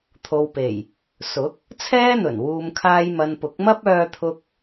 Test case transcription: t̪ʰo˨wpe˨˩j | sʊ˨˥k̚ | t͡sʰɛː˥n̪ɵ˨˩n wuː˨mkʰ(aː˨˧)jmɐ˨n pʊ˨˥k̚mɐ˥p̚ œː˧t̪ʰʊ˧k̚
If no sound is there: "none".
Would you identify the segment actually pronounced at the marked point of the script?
aː˧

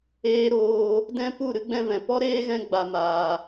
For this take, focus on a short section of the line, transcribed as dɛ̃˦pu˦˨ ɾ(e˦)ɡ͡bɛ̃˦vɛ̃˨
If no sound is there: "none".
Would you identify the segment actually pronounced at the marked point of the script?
ɨ˦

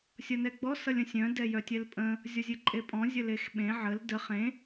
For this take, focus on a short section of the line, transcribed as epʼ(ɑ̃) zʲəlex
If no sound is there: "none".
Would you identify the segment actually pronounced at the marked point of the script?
ɔ̃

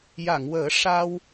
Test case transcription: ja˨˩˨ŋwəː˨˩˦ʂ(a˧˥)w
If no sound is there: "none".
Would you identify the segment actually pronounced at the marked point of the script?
a˧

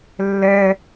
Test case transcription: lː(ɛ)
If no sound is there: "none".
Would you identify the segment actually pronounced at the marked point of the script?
ɛ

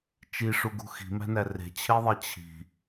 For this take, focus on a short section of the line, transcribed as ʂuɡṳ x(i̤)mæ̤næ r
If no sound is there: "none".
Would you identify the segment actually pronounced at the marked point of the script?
i̤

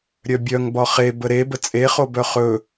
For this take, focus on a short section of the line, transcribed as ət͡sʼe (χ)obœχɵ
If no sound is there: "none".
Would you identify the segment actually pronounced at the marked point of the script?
χ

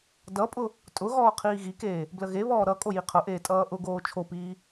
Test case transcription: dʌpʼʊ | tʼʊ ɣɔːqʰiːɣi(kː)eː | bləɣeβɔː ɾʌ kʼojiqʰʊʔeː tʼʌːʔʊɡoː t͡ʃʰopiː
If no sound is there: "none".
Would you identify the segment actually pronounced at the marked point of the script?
k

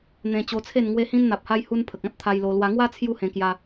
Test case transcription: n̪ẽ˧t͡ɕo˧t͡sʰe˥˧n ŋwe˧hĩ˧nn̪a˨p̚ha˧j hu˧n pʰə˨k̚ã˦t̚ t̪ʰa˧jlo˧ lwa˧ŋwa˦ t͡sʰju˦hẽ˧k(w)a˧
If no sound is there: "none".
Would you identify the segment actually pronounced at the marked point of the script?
j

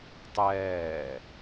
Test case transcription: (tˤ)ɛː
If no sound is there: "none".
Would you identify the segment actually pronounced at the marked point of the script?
tˤ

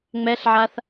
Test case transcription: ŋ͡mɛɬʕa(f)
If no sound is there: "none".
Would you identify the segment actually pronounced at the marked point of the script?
θ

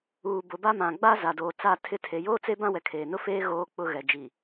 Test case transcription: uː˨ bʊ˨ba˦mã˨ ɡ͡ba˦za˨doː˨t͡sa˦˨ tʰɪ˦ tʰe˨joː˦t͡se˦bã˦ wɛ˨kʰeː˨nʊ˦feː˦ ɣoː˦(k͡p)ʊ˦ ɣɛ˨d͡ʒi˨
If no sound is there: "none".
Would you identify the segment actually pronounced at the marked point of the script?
k͡p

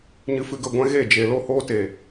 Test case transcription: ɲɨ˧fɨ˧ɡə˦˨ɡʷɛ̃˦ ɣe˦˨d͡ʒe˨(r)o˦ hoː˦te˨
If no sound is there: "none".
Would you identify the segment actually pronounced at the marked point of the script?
l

